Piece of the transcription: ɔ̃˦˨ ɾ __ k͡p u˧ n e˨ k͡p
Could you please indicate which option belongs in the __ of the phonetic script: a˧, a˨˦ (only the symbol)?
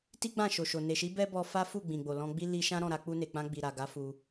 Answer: a˨˦